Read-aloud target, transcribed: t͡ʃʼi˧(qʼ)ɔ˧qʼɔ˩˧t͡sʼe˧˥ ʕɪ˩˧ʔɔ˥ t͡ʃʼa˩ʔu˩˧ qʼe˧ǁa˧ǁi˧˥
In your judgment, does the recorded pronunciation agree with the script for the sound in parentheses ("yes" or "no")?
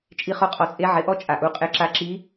no